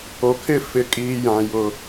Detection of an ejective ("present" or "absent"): present